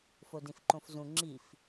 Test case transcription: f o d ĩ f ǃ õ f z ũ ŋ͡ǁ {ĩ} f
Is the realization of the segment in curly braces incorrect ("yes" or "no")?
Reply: yes